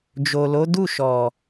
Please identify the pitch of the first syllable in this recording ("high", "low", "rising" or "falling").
low